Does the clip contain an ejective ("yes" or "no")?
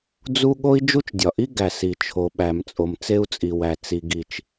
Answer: yes